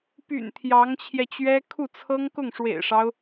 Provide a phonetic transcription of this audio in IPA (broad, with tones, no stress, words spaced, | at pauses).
py̰˨˩n t̪ʰjɑ˧˥ŋt͡ɕʰjɛ˧t͡ɕɥɛ˥ kʰu˥˩t͡sʰɤ˥ŋ kʊ˥˩ŋʂwḛ˨˩ɪ̯ʂɑ˦ʊ̯